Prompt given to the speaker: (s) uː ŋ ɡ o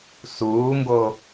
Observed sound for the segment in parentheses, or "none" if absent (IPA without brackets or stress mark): s